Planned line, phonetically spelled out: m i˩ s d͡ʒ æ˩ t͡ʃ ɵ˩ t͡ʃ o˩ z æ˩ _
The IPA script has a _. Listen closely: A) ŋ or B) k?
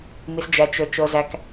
B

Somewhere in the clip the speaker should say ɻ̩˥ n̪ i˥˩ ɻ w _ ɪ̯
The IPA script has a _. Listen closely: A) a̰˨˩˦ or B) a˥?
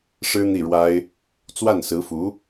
B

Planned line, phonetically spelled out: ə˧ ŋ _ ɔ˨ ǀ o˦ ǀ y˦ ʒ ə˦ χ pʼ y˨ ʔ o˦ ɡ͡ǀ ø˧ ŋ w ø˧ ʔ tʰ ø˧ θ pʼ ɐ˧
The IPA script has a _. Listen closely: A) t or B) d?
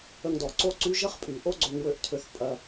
B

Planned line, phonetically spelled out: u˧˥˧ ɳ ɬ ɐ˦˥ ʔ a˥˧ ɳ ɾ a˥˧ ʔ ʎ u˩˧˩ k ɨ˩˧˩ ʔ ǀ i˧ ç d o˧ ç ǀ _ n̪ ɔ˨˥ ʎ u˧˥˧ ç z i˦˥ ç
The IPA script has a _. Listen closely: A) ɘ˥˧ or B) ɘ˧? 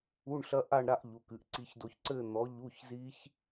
A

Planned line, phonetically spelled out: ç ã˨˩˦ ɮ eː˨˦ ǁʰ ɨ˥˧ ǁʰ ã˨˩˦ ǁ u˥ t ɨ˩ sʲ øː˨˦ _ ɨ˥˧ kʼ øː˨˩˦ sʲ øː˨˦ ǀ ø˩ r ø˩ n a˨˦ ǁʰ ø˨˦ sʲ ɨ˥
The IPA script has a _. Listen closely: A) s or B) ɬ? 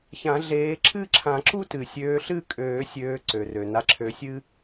B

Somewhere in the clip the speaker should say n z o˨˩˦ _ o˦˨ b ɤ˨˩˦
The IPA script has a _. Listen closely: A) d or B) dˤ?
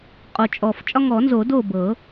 A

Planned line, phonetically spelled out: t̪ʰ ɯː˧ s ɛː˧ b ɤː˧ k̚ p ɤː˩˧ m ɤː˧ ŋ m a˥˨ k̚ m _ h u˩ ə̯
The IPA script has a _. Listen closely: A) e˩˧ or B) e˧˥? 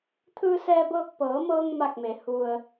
A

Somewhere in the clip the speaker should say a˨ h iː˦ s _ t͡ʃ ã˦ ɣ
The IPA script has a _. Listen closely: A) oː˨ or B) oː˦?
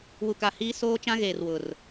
B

